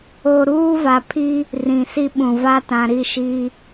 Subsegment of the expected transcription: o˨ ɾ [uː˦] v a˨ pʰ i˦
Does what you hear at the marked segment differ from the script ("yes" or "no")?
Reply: no